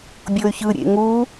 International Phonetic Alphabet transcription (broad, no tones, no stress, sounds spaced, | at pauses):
bʲ o y̯ ç ɯ ɾʲ ḛ ŋ u